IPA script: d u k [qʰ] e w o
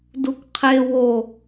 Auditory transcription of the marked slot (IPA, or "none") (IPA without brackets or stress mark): qʰ